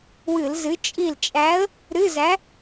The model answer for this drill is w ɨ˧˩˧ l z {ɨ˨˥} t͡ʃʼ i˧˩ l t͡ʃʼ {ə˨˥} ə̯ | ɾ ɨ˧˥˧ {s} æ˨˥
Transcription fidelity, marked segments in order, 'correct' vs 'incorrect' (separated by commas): correct, incorrect, incorrect